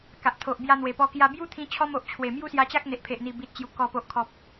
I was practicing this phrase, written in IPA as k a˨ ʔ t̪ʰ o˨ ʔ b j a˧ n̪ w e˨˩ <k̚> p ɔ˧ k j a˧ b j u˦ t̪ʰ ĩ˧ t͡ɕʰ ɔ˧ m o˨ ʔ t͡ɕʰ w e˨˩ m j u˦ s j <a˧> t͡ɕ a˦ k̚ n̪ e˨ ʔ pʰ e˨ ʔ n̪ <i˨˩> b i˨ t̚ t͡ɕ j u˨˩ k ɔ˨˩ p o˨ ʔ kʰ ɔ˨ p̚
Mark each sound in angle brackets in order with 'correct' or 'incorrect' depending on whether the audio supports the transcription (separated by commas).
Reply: incorrect, correct, correct